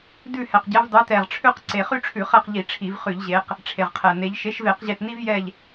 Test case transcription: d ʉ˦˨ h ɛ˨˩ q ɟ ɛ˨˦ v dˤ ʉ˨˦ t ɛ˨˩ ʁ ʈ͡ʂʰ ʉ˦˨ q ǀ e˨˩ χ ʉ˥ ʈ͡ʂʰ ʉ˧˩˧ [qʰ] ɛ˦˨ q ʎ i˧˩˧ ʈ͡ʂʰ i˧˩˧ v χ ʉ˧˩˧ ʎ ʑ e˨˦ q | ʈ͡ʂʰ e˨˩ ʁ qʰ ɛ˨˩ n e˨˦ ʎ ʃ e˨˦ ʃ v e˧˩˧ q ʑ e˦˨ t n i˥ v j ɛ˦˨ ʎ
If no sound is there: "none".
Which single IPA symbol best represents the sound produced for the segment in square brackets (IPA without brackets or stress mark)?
χ